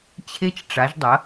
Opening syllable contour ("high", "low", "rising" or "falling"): high